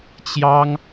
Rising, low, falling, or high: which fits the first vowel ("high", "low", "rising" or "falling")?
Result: high